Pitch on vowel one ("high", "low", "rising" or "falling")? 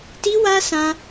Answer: high